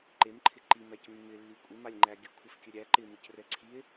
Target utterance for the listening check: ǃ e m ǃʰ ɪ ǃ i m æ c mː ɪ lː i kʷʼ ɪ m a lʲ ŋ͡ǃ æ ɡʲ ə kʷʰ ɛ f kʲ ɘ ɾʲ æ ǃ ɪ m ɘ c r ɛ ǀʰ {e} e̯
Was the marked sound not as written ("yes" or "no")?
yes